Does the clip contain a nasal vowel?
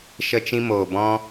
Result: yes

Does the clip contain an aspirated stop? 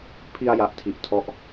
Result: yes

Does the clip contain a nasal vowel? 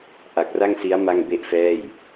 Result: no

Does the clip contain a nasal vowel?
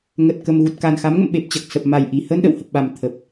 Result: no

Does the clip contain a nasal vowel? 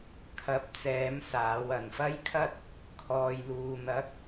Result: no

